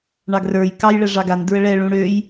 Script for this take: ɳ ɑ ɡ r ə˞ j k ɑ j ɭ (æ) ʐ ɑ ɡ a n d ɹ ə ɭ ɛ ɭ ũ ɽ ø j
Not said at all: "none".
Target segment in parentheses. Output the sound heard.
ɛ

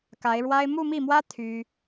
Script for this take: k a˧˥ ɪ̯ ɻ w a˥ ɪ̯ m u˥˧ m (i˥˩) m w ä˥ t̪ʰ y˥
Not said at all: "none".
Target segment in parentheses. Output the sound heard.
i˥˩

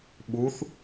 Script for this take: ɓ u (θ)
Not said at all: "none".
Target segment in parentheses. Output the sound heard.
θ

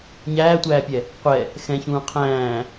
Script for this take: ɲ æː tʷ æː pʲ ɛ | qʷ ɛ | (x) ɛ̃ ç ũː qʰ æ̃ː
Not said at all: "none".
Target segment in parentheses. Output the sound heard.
x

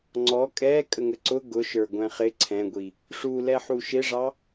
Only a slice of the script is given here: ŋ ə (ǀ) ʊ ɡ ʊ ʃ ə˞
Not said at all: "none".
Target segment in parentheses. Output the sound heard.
ǀ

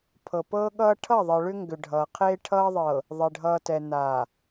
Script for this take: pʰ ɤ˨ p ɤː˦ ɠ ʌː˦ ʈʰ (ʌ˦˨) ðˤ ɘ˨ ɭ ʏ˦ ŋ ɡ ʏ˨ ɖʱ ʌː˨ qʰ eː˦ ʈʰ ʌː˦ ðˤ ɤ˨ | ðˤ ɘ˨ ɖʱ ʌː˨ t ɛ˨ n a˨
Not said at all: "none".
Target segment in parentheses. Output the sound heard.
ʌ˦˨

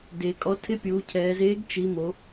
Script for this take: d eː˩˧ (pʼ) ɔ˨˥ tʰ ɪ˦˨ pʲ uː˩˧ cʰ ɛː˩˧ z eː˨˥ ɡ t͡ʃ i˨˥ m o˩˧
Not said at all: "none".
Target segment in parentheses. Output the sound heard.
kʼ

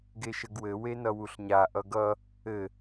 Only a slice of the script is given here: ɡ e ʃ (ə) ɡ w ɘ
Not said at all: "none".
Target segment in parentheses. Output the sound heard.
ə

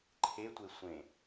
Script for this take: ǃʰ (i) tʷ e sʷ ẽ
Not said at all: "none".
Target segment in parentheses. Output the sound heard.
e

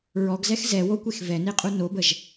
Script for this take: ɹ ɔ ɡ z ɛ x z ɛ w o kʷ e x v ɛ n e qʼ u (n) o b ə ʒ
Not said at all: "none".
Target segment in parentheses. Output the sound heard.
n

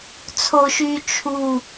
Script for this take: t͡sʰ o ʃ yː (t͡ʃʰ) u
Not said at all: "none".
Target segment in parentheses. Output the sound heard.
t͡ʃʰ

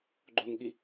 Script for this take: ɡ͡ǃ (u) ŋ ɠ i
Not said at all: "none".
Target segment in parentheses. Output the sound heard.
o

